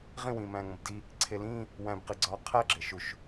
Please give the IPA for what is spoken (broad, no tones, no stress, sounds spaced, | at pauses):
ʁ ĩ w ĩː m æ̃ː ŋ õ b d i | ǀʰ e l ĩː | w æ̃ b q i ɡ͡ǀ ɒː qʰ æ ɡ͡ǁ e ʃ u ʃ